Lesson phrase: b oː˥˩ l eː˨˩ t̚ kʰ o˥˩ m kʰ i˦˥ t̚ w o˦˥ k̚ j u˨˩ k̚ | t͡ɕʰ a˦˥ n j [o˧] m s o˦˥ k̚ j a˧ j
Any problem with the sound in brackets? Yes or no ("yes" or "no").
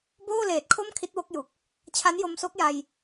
no